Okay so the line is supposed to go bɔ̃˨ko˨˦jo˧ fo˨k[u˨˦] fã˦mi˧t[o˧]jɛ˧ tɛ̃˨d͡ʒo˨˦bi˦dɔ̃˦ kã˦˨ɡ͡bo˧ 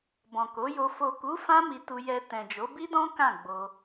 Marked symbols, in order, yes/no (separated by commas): yes, no